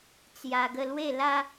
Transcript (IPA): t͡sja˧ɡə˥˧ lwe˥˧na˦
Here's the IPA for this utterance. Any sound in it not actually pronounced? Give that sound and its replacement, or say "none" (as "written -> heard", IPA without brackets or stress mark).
n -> l